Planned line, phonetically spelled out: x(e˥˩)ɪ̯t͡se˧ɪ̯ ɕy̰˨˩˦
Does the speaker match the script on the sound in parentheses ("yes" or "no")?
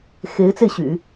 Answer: no